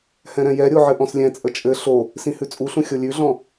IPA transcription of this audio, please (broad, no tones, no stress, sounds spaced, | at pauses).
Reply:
h ɛ̃ ɾ ɛ̃ j ɛ ɾʲ o ʕ ɘ ʔ ɔ̃ s lʲ ɛ̃ t͡sʼ ə t͡ʃʼ ɘ ɬ o | s ĩ h ʉ t͡sʼ u ɬ ũ xʲ o lʲ ʉ ɮ ɔ̃